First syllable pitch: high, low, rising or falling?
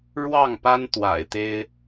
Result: falling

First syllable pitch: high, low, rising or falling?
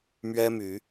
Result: high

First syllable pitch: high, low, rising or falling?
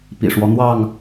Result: low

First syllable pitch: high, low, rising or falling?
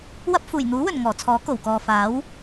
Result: high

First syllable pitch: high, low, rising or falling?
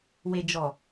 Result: low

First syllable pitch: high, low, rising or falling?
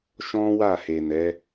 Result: high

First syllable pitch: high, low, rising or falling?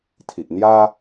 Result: low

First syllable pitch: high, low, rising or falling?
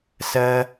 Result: high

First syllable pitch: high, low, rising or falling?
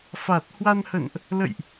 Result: low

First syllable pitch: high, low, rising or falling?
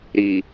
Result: low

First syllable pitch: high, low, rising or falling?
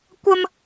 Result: high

